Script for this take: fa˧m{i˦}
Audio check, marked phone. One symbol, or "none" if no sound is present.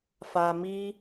i˦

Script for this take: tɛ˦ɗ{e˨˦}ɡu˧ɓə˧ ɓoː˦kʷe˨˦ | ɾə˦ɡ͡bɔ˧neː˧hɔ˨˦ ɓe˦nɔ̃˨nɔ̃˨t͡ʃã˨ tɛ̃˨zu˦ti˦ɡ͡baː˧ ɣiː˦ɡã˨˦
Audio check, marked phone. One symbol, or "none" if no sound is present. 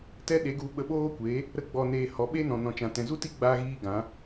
e˨˦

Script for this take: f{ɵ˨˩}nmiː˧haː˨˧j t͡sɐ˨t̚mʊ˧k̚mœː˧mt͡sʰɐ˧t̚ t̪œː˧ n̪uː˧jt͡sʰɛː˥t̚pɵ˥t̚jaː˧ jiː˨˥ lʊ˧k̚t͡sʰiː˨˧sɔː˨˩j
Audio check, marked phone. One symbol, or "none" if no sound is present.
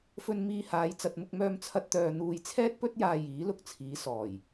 ɵ˧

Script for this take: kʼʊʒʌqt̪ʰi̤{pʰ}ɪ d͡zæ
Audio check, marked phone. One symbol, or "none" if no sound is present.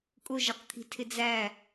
tʰ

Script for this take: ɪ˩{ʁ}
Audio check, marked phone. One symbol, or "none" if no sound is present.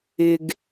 ɡ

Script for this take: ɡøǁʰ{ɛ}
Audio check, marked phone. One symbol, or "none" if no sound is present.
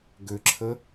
ə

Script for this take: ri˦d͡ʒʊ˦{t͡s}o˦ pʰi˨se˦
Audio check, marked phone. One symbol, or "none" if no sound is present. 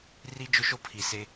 ʃ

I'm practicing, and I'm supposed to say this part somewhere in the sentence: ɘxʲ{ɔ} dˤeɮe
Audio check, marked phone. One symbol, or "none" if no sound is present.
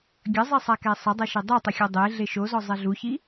o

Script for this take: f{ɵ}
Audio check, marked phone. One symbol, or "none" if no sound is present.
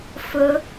ɵ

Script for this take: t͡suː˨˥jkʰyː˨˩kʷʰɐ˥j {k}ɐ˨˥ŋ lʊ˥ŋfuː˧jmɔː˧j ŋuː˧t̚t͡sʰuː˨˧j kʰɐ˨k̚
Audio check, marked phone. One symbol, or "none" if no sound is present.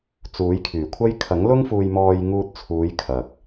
kʰ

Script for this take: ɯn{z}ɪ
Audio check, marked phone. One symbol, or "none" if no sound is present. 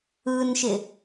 ʃ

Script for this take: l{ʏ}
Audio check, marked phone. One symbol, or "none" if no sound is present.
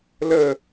ə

